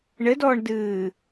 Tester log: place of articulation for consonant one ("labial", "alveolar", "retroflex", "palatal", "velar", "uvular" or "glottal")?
retroflex